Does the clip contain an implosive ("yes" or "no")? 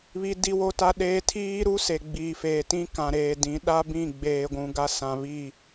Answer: yes